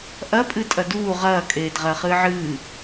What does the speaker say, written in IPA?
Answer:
ʔ ɐ pʼ ɨ tʼ ɐ d uː ʁ ɐː kʼ eː d ʁ ɐː χ ɨː ʕ ɨː

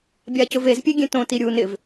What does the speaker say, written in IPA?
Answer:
bʲ a c ʊ v e z pʲ e ɡʲ ẽ t õ t i ɾʲ u n ɪ v

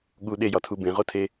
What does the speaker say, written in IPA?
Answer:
ɠ u ɗ e j ɒ tʰ u b ẽ ʁ o tʰ e

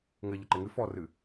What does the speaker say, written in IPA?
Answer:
ŋ ɘ ʎ ɐ ǃ e ŋ ɨ f ɔ r ɨ

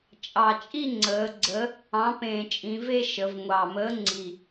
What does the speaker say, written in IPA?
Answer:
t͡ʃʼ ɑ˨˩ t͡ʃʼ i˥˧ ŋ͡ǀ əː˩˧ ɡ͡ǀ ə˨˥ | ɑ̃˨˥ p ẽː˨˩ t͡ʃʼ ĩ˩˧ v e˥˧ ʃ ə˩˧ v ŋʷ ɑ˨˩ m əː˨˥ ŋ͡ǀ i˨˩

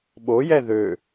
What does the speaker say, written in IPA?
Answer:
ɓ o j ɛ ð ø

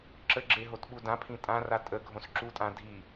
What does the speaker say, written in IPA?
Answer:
ǁ ə ɡ͡ǁ e ɦ o t ɓ u d ã pʰ ĩ tʼ ã r a tʼ ə ɡʱ õ s ǁ u tʼ ã dʱ i

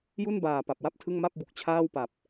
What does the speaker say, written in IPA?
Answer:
j u˥˩ n b aː˨˩ p a˨˩ p̚ w a˥˩ p̚ tʰ ɯ˥˩ ŋ m a˥˩ p̚ b u˨˩ k̚ t͡ɕʰ aː˥˩ w p a˨˩ p̚

